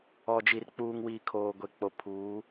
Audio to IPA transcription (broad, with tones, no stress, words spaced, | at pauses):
ɔ˨d͡ʒi˨r k͡puː˨ŋwiː˨ kʰoː˨ɡʷe˨k͡po˨ pʰuː˨˦